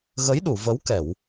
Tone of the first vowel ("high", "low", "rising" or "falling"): rising